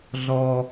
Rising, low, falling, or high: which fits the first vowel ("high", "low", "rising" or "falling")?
high